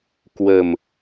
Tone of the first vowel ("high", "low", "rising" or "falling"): low